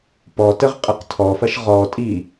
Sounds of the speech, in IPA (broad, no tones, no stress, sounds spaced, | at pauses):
p ɔ t ə ʁ qʼ ə q tʰ ɔ f ɐ ʃ ʁ ɔ tʼ i